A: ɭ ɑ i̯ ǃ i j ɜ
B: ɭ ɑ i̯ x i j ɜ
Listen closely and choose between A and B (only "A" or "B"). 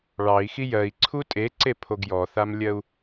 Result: B